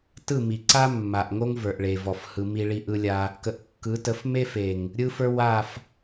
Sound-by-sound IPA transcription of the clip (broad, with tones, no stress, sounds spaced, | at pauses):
t ɯ˦˨ m i˨ ǀ a˦ mː a˨ ʔ ŋ o˦ ŋ v ə˞˨ ʔ ɭ e˨ v ɔ˨ f h ɯ˧ m i˦ ɭ i˦ ʔ ɯ˧ lʲ a˧ | k ə˨ ʔ kː ɯ˨˦ t ə˨˦ f m e˦ f e˨ ŋ | ɾʲ ɯ˧ f ə˞˧ w a˦˨ f